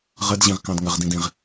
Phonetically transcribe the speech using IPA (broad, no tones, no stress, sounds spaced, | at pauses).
ʁ ə d ʑ ĩ ʁ k ɑ̃ d ŋ ə ʁ d ĩ d ĩ ʁ